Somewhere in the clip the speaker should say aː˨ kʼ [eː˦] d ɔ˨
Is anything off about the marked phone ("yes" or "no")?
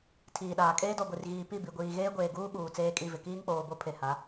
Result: no